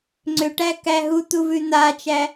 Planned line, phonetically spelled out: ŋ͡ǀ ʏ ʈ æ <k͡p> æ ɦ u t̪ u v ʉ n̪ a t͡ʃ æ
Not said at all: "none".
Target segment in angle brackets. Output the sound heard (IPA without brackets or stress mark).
k